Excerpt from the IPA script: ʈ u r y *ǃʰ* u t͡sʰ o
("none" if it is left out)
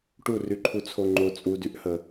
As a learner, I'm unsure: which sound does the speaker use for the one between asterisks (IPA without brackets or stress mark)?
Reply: ǃʰ